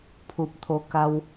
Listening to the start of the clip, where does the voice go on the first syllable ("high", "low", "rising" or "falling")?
low